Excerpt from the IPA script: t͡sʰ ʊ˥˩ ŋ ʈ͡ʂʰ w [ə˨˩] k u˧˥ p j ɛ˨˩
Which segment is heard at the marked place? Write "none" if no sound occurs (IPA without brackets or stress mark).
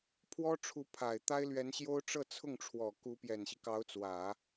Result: ɔ˨˩